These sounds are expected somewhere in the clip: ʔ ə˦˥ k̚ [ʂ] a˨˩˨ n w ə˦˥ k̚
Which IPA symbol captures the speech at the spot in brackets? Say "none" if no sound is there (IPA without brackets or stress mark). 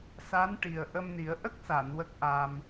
s